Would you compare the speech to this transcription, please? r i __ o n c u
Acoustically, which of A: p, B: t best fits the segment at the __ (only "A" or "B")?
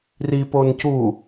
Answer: A